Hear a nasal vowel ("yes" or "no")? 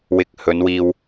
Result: no